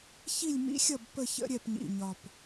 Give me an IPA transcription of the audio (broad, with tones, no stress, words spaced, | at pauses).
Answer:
çi˦˨lʲmḭ˧˥xʲʌ˦˨b pə˦˨ çə̰˧˥ɾʲɛ˦˨pɲḭ˨˩ɲɒ˨˩p